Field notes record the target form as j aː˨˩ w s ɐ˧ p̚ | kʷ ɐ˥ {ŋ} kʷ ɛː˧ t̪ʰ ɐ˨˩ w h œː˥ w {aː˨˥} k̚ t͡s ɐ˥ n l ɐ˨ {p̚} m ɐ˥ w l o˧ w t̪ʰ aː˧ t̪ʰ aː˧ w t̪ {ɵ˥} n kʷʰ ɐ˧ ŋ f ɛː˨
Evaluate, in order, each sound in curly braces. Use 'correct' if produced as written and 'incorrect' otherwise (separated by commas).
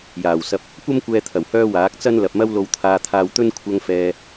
incorrect, correct, correct, correct